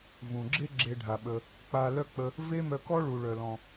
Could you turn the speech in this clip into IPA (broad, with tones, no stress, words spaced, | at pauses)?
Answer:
vũ˩ɡ͡ǁe˥ ɡ͡ǁe˧ɖʱa˩ɓə˩ | k͡pa˧ lœ˥k͡pə˧ | ve˥mœ˧kɔ˥ɭu˩ ɭœ˩lɔ̃˩